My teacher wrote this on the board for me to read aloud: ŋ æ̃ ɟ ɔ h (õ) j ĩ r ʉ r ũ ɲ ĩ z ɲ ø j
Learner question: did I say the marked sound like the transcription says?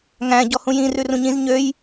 no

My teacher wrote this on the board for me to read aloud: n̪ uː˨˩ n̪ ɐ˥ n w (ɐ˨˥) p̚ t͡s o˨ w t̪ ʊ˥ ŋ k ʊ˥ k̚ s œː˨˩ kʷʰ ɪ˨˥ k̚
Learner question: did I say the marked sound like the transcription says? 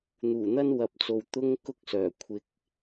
yes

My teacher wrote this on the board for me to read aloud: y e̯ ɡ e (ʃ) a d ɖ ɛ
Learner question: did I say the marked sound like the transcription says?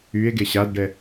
no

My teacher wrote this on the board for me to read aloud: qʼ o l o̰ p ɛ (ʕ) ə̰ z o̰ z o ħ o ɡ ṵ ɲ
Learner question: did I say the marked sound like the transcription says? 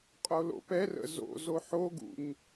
no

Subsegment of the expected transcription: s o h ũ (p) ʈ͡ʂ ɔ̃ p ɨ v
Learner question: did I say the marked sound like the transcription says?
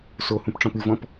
yes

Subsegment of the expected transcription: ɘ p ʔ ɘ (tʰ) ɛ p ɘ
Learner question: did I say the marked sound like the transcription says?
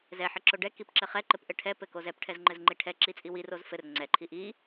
no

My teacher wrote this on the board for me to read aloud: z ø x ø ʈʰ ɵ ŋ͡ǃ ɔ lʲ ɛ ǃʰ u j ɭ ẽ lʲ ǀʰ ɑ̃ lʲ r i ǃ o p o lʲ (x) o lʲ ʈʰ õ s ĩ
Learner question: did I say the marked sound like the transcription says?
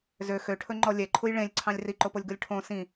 no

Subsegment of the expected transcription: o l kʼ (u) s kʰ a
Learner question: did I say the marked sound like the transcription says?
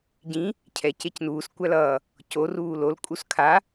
yes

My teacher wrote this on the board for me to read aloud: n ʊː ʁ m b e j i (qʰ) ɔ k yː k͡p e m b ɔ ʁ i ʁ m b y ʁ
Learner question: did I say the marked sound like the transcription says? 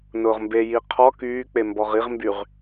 yes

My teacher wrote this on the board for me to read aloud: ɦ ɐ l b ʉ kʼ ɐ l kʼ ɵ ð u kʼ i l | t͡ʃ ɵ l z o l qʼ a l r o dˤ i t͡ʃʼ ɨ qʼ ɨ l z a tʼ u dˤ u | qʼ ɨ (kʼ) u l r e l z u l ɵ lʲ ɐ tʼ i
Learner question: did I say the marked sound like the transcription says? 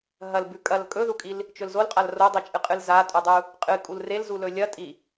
yes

